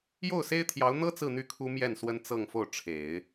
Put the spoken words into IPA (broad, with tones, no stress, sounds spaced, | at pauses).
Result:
j o˥˩ ʊ̯ s e˥ ɪ̯ t̪ʰ j ɑ˧˥ ʊ̯ n̪ ɤ˥ t͡s ɹ̩˥˧ n̪ y˥˩ kʰ u˥ m j ɛ˥˩ n s w ə˥ n t͡s ɤ˥˧ ŋ f o˥˩ ʊ̯ ʈ͡ʂʰ e˨˩˦ ɪ̯